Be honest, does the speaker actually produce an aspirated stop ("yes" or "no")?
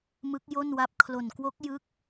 yes